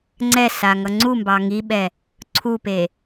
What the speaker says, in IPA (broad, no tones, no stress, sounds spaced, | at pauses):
ŋ͡ǀ ɛ s a ŋ ʌ ŋ͡ǀ u m b ɑ ŋ i ɓ ɛ | ǀʰ u p e